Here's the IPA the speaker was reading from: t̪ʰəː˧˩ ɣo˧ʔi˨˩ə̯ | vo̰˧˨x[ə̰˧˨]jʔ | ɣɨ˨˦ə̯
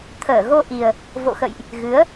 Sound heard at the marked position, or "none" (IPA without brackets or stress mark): ə̰˧˨